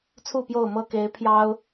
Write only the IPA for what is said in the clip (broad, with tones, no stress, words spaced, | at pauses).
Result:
t͡sʰu˥˨pjo˥˨ʊ̯ mɤ˥˨ke˨˦ɪ̯ pʰjɑ˦ʊ̯